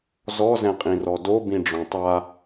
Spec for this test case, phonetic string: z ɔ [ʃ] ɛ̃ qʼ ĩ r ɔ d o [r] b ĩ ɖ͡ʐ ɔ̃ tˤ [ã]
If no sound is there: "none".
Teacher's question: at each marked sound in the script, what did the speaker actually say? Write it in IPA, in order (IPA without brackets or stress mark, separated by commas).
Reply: z, none, a